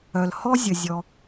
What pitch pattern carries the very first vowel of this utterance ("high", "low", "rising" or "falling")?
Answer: low